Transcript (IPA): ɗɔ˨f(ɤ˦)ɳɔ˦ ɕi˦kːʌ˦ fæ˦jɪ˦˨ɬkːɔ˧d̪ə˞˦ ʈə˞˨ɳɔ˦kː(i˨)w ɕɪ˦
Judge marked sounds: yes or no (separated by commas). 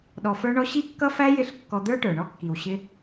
no, yes